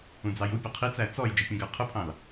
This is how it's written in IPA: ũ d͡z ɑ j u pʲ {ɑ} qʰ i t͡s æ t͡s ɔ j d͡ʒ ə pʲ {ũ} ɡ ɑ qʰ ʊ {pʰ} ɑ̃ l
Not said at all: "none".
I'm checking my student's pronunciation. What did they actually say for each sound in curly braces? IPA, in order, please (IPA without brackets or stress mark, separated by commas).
ʌ, ũ, pʰ